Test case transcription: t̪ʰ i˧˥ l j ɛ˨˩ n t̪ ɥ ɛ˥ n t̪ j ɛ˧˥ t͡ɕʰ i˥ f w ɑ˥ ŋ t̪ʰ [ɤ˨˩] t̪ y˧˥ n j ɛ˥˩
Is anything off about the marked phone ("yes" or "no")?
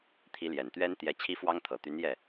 no